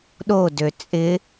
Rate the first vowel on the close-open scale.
mid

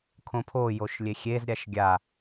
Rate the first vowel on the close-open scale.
mid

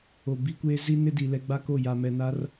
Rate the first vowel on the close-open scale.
mid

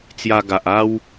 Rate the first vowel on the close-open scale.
open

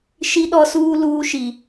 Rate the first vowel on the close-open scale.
close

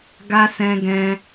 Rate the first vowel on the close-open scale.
open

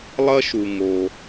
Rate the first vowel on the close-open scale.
open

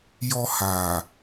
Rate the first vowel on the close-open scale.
mid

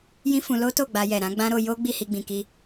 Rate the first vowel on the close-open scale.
close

